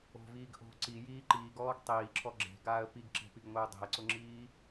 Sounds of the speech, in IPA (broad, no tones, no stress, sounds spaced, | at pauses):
o̤ v iː ɡ ʔ o̤ ǀ i j iː ǃ iː ɡ ɔː ɡ tˤ iː ǁʰ ɔ ɡ͡ǁ e̤ ɡ aː ə̯ p i ɡ ǁ e̤ p i ɡ ŋʷ e ʊ̯ dˤ i̤ ə̯ ǀ ʊ ŋ͡ǁ iː